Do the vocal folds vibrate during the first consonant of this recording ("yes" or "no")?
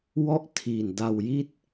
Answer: yes